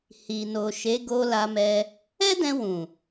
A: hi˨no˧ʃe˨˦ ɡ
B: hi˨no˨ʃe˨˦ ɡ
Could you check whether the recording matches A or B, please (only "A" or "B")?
B